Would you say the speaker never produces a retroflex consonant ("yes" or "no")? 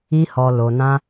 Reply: yes